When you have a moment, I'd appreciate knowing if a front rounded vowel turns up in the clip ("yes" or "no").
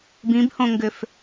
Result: yes